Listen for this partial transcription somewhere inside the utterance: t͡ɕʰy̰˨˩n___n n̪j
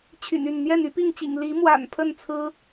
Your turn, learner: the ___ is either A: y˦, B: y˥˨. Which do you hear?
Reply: B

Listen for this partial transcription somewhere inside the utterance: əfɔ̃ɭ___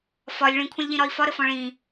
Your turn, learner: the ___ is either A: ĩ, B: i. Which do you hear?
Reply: A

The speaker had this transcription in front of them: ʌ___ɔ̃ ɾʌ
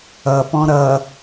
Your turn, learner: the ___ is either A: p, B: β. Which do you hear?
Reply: A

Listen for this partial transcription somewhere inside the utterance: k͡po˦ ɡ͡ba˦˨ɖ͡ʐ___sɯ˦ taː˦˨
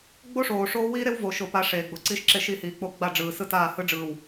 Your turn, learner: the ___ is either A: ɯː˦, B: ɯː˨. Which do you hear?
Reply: B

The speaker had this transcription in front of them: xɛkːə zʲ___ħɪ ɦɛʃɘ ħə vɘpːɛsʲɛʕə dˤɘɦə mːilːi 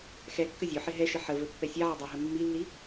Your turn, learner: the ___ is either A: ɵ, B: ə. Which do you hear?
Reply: A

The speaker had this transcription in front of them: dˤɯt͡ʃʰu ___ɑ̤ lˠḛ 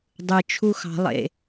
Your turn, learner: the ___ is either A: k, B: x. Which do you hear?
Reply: B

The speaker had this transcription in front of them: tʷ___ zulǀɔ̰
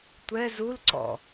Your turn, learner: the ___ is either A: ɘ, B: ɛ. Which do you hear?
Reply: B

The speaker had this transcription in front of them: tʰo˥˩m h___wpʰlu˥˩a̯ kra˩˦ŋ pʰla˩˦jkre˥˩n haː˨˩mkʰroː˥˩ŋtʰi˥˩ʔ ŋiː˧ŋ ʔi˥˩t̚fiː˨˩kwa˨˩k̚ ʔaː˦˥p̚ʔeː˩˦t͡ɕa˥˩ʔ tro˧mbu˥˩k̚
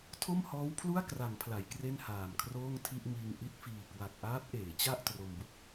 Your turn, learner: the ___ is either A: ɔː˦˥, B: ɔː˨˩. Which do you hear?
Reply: A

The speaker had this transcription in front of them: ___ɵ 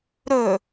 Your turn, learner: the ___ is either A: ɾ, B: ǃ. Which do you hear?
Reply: A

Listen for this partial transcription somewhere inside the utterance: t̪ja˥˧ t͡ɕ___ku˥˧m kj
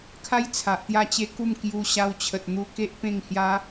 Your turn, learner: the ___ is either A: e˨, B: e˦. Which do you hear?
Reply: B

